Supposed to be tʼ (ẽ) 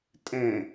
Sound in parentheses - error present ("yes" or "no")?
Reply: no